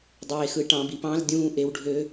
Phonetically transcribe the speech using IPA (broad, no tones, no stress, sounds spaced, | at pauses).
dˤ eː x ɯ ʈ ɑ̃ b i p ɑ̃ l dʲ ũː ʔ e w ɖʱ ø